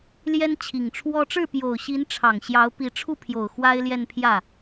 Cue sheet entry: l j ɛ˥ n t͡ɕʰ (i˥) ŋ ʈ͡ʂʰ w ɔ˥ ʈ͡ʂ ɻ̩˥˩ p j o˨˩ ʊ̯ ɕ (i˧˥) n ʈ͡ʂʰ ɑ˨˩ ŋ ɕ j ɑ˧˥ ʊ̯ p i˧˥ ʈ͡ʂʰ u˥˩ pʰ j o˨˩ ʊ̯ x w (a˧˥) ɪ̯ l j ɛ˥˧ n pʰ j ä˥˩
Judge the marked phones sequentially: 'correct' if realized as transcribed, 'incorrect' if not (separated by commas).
incorrect, correct, incorrect